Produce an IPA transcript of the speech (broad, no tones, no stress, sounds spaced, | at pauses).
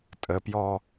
tʼ ə p j ɔ